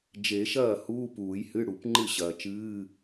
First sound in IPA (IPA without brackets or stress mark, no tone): d͡ʒ